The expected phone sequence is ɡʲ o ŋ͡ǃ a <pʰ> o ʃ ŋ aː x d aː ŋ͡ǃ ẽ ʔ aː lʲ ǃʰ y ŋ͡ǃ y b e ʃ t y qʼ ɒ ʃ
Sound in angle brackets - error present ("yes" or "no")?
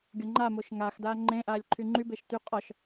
yes